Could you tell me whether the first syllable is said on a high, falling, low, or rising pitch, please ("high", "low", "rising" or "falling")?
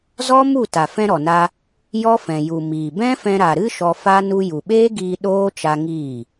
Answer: high